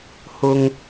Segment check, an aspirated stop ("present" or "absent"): absent